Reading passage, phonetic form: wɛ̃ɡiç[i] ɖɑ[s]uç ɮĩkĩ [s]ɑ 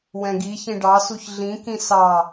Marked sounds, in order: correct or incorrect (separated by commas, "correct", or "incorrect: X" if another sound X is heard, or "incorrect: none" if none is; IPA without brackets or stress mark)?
incorrect: ĩ, correct, correct